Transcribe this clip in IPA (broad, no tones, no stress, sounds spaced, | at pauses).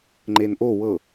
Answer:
ŋ͡ǃ e n ʔ o w ɤ